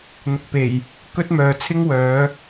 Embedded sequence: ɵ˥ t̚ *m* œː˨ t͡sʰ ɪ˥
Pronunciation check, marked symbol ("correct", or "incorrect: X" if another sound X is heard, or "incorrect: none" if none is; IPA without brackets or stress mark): correct